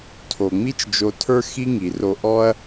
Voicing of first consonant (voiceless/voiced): voiceless